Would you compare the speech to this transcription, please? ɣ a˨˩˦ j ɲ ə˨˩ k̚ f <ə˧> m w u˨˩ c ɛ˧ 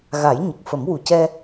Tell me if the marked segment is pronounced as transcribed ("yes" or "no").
no